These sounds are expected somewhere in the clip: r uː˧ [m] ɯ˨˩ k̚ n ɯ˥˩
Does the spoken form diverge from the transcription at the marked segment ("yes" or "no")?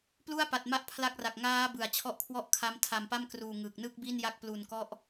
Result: yes